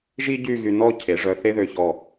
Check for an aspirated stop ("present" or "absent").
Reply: present